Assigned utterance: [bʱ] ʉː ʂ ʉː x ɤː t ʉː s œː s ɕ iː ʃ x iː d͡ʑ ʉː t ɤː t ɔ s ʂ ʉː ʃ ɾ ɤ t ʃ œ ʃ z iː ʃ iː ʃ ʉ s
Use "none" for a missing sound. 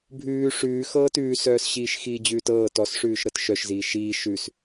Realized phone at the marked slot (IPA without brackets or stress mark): bʱ